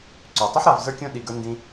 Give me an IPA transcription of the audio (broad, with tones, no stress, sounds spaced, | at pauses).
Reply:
ǀ y˨ tˤ ʉ˦ ħ ɾ a˧ v z ə˞˦ kʲ õ˦ ɗ i˧ ɡ ə˞˦ n d ĩ˦